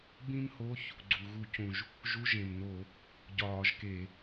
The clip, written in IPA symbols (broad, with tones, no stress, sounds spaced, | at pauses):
b ĩ˥ m h o˧˥˧ ç | ɡ͡ǀ u˩ ɣ u˧˩˧ c ũ˩ ʒ | ʒ u˧˥˧ ʒ ẽ˩ m n o˧˩˧ | ɟ ɒː˧˩˧ ʒ k e˧˩˧